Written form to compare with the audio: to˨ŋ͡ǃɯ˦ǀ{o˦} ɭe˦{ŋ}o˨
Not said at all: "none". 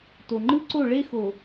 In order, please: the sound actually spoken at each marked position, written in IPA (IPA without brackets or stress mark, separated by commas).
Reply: o˦˨, x